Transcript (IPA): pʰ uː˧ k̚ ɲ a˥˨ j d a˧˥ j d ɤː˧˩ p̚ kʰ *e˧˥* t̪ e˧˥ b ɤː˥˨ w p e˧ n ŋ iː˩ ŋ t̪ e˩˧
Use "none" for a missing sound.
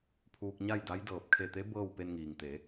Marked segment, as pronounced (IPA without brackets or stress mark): e˧˩